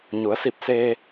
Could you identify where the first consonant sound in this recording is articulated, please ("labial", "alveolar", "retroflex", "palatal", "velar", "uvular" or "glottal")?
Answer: palatal